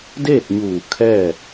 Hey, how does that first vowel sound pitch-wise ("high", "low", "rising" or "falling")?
falling